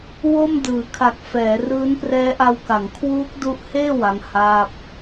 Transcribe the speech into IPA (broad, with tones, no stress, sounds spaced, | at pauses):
w o˥˩ m d ɯː˩˦ kʰ a˨˩ k̚ f ɛː˩˦ r ɯː˦˥ n p r ɛː˦˥ ʔ a˧ w k a˩˦ ŋ kʰ w uː˦˥ k̚ d u˦˥ ʔ h eː˥˩ w a˦˥ ŋ h aː˥˩ p̚